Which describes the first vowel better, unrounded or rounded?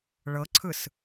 unrounded